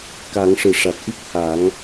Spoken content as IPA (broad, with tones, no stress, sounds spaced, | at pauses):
k a˨˩˦ ŋ ʂ ɨ˨˩˨ ʂ a˨˩ t̚ ʔ i˦˥ k̚ h a˨˩˦ ŋ